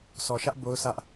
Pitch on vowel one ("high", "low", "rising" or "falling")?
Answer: low